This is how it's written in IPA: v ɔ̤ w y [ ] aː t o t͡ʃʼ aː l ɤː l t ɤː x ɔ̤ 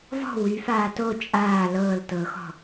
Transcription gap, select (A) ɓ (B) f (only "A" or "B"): B